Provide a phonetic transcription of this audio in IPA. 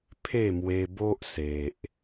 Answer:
pʰ e˥˧ m w e˧ b o˦ ʔ s e˨ ʔ

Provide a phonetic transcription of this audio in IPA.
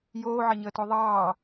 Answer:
j oː ʕ ɐ ɲ əː t o ðˤ ɑː

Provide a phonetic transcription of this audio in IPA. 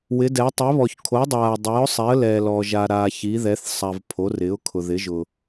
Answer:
w ɪ˨˥ d ɛ˨˥ tˤ ɛ˨˥ β ɔː˨ ç kʰ o˨˥ dˤ aː˨ ə̯ dˤ ɛː˨˥ ʊ̯ sˤ ɛ˨˥ ə̯ l ɛː˨ l ɔː˨ ʒ aː˨ ɾ aː˨ ç i˨˥ ð ɛ˨˥ θ sˤ a˨ v pʰ o˨˥ r ɪ˨˥ ʊ̯ kʰ ʊ˨ ð ɪ˨˥ ʒ ʊ˨

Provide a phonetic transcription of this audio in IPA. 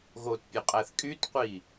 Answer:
ɣ o t pʲ ø qʼ æ θ kʼ y t qʷ i

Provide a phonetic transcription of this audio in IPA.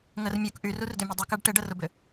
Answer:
ŋ ə r mʲ u k ʔ y r u r d ʏ mʲ ʊ dˤ ɪ k a ɖ ʈ ɪ ɖ ə r ʊ b ʏ

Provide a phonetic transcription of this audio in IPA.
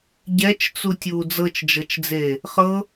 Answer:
ɟ ɛ t͡ʃ t͡s u tʲ uː d͡z ɤ t͡ʃ d͡ʒ ɤ t͡ʃ d͡z eː | χ ɤ

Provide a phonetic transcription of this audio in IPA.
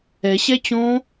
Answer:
ɛ ɕ ɛ t͡ɕ õ

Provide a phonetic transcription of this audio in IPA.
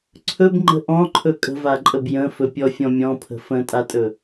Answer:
ǀʰ ɵ b ŋ͡ǃ ə̤ ʔ ɔ̃ ǃʰ ɵ kʼ ə̤ v a ǃʼ ə b j ə̃ f ɵ pʲ ɔ fʲ ɔ̃ mʲ ɔ̃ pʰ ə̤ f ə̃ tʼ a tʼ ɵ

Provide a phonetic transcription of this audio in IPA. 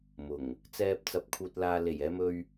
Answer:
m ʊ˨˩ ŋ | t͡s ɛː˥ p̚ t͡s ɐ˧ p̚ kʰ uː˧ t̚ l aː˧ l e˨˩ j ɛː˧ m ɵ˧ ɥ

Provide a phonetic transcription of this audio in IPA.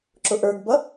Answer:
ǁ ʊ ʔ ə˞ ɡ b ʌ

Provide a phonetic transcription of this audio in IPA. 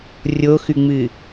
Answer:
rʲ o x ʉ ŋ͡m ɨ

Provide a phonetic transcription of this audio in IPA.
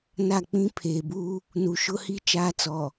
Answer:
n a˦˨ k͡p ĩ˦ pʰ eː˨ b u˦ | n u˨ ʃ ʊ˦ h i˦ t͡ʃ aː˦ t͡s ɔ˨

